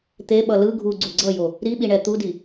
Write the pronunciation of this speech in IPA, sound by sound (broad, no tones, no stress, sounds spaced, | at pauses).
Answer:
t̪ e ɓ ʌ l ɯ ɡʱ u ɡ͡ǀ u ɡ͡ǀ ʌ j o | ɾ i ɓ i ɳ ɛ t̪ u d i